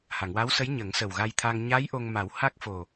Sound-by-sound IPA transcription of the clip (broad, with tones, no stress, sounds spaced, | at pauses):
h a˨˩˨ ŋ w a˧˥ w s ə˧˥ j ɲ ə˨˩˦ ŋ s ə˨˩ w ɣ a˧ j t̪ʰ a˧ ŋ ɲ a˧˥ j ʔ o˧ ŋ m a˨˩˦ w h a˦˥ k̚ f o˨˩